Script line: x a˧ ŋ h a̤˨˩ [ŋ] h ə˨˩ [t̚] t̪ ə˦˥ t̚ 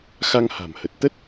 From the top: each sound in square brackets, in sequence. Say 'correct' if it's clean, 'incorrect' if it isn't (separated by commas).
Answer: incorrect, correct